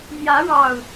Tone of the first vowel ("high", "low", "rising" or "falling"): rising